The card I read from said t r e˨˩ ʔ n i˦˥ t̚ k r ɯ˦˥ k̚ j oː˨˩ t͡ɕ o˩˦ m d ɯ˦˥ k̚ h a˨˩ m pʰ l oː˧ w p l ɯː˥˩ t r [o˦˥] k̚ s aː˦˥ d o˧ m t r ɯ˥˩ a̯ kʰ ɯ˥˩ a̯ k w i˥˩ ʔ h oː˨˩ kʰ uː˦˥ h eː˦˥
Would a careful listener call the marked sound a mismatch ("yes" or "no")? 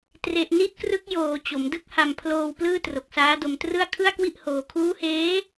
yes